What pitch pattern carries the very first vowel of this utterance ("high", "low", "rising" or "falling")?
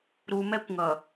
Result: low